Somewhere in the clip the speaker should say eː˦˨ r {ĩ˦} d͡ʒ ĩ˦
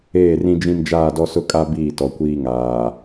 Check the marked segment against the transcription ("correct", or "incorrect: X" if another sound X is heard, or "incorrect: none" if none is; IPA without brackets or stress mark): correct